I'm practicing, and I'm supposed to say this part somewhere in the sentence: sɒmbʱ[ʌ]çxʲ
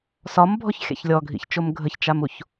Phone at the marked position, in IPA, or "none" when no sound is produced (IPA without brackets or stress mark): ɔ